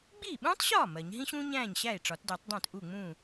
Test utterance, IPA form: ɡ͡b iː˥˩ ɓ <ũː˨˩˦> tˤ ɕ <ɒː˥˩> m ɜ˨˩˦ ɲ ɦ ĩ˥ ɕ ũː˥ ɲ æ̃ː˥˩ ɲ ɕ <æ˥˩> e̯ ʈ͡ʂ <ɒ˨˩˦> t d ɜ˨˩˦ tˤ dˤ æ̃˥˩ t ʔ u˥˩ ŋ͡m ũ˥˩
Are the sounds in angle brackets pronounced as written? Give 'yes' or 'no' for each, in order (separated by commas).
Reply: no, yes, yes, yes